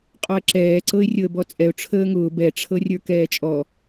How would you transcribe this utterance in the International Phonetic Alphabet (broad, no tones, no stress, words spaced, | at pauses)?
qʼɔə̯ǁɛːǀɤɪ̯ rʲɤə̯bɔt͡sʼɛʊ̯ ʈ͡ʂʰəːŋʊː bɛʈ͡ʂʰɤrʲə˞ kɛːt͡ʃʼɔ